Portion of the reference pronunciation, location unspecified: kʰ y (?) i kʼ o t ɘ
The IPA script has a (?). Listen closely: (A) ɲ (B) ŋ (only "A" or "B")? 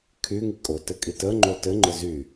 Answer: B